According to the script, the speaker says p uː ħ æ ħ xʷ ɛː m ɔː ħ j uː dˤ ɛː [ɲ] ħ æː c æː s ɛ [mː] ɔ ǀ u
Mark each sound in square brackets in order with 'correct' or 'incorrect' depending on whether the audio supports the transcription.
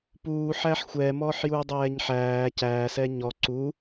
correct, incorrect: ɲ

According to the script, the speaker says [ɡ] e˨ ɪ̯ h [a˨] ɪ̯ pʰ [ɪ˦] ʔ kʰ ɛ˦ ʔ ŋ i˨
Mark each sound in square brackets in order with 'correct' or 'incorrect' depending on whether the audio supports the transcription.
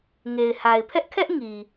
incorrect: ŋ, correct, incorrect: ɛ˦

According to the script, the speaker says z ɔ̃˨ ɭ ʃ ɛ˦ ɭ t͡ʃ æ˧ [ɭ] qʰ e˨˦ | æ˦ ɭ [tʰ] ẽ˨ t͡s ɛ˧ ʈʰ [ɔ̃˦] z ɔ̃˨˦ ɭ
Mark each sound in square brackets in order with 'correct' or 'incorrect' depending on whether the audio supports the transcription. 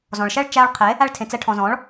correct, correct, incorrect: ɔ̃˨

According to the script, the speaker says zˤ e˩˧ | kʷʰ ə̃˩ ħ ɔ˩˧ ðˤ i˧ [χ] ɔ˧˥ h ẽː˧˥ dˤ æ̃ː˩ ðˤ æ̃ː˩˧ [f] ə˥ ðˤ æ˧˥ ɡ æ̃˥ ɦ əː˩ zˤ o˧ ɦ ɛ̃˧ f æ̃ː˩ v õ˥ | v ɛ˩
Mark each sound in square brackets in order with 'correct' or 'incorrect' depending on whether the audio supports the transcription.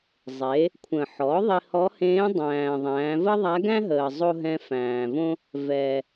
incorrect: h, incorrect: v

